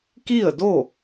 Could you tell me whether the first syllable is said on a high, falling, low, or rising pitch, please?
falling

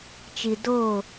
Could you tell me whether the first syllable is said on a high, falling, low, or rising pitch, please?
low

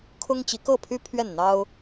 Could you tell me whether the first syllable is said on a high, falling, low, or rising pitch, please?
high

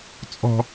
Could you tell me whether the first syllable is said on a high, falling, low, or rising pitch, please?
low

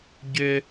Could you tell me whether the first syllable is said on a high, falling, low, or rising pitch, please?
high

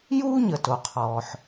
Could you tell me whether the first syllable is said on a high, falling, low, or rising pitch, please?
high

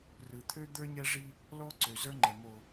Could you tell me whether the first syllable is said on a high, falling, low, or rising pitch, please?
low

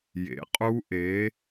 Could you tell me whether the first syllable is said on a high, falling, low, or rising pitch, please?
rising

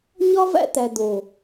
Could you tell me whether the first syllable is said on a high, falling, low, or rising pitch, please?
high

